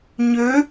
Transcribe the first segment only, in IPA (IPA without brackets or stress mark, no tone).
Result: ɲ